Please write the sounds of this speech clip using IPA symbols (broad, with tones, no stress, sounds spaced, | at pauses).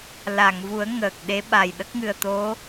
l a˨˩˨ ŋ v u˨˩˦ ə̯ ŋ əː˨˩ k̚ ɗ e˧˥ ɓ a˨˩ j ɗ ə˦˥ k̚ ŋ ɨ˨˩ ə̯ t̪ o˧˥